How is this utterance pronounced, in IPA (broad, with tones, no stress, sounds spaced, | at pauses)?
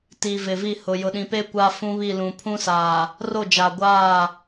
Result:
t i˨ v ɪ˨ v i˦˨ h ʊ˨ j ʊ˨ ɗ ĩ˨ p e˦ kʷ a˦ f ũ˦ β i˦˨ l ũ˨ pʰ ũ˦ s aː˨ | r o˦˨ d͡ʒ a˨ ɡʷ aː˦˨